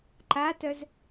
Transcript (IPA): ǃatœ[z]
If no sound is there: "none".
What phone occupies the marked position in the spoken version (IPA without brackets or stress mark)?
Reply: z